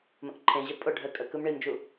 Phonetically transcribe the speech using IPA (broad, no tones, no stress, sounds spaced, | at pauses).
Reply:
m ə̃ ʔ ǃʰ ẽ ʑ ə pʼ ʊ ɖʱ ə kʼ ə k ɯ m ɳ i m d͡ʒ u